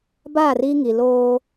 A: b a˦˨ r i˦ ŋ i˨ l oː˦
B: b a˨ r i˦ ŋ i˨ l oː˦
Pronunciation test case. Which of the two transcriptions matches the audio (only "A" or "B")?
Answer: A